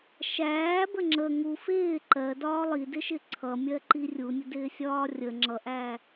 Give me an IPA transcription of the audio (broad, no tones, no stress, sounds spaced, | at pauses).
ʃ æː b ə ŋ͡ǁ ə ŋ u f ɪː ǃ ɜ d ɒː lˠ i d ɪ ʃ ɪ ǀʰ ʌ mʲ ɜ ǃ i rʲ u nʲ ə d ɪː sʲ ɒː rʲ ə ŋ͡ǁ ʌ ʔ æ